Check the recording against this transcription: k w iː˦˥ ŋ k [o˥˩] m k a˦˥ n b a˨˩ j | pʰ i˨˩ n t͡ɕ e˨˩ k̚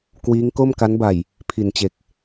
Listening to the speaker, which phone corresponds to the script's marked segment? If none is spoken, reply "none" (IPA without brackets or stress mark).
o˥˩